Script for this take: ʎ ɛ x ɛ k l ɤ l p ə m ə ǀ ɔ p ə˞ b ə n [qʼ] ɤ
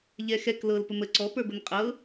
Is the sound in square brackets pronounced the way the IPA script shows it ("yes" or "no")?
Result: yes